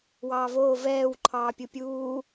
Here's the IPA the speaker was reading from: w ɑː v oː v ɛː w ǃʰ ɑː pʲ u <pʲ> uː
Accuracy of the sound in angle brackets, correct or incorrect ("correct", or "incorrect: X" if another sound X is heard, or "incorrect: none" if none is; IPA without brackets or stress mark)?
correct